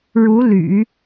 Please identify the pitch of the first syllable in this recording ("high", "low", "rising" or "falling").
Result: rising